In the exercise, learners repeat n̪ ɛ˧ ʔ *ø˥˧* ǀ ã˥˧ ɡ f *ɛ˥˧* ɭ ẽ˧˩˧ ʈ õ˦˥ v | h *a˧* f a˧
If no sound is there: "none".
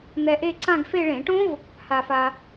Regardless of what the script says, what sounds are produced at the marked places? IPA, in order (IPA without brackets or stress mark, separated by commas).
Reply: e˥˧, e˥˧, a˧